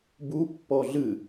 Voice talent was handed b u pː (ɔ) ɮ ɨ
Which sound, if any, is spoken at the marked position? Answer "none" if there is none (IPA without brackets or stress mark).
ɔ